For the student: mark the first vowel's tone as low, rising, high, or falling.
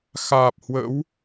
low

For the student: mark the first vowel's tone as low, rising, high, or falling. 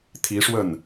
rising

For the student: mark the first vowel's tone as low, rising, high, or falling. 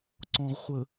low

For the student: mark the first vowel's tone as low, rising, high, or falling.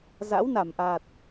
rising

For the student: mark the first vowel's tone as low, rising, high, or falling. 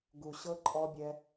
low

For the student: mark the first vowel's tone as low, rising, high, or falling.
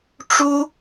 high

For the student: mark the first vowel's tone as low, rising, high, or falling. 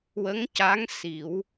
rising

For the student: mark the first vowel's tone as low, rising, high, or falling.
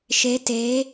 rising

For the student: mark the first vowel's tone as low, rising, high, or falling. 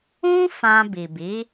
high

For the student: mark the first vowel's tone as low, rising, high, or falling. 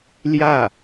falling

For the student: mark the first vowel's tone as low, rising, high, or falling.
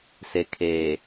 low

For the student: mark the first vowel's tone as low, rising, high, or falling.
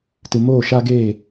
low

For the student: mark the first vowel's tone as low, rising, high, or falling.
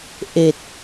low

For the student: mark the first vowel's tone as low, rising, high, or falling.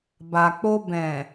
low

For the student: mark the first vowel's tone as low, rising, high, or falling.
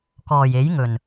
low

